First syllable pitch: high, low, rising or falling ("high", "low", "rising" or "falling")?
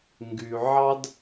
low